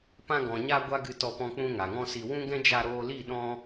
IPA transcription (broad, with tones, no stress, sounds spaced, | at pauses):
p ã˧ ɡ ɔ̃˨ ɲ a˧ ɡʷ a˦ ɡ ɨ˧ t ɔ˧ p ɔ̃˧ k͡p ũ˧ ŋ a˨ ŋ ɔ̃˦ s i˧ w ũ˦ ɡ ɛ̃˦ d͡ʒ a˧ ɾ oː˧ l i˦˨ ɗ ɔ̃˦